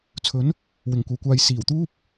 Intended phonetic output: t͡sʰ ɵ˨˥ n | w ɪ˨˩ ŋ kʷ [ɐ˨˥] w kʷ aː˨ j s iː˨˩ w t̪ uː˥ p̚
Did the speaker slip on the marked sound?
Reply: yes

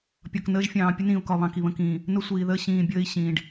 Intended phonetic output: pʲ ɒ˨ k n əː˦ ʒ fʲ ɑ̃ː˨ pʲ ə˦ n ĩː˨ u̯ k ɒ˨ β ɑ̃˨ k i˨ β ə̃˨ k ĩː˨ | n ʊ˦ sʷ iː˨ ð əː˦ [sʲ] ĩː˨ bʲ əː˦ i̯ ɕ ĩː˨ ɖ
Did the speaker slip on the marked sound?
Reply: yes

